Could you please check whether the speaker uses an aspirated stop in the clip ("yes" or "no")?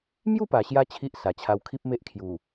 yes